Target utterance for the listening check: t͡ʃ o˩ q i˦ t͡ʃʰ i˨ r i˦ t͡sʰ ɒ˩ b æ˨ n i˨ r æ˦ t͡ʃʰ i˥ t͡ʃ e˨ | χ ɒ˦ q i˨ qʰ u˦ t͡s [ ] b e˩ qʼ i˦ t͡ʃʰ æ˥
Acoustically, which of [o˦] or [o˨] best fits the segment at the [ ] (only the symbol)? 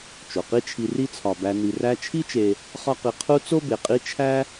o˦